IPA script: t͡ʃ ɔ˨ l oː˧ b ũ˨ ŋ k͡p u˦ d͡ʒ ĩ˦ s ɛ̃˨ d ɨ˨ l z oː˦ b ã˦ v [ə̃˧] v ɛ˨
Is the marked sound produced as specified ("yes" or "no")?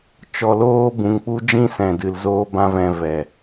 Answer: no